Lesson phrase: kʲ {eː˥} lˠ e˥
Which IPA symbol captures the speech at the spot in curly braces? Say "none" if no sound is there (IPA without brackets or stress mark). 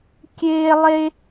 eː˥